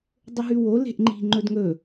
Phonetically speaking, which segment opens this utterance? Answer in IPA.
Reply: dˤ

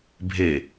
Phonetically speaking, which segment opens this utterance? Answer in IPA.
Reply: bʱ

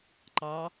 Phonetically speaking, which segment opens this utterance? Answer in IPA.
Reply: ǃ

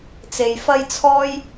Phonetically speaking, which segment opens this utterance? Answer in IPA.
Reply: t͡s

